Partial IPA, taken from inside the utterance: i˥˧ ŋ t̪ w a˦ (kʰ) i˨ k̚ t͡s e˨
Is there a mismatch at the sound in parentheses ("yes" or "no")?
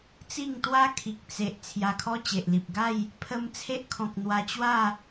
no